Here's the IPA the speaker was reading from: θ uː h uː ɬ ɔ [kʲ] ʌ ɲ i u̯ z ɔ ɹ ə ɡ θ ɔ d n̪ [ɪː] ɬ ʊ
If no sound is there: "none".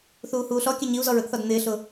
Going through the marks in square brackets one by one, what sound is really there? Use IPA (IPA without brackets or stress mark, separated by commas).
kʲ, ɪː